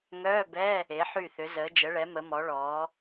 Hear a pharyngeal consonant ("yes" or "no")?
yes